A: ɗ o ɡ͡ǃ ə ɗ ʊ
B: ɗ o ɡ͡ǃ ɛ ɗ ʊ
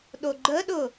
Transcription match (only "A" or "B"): A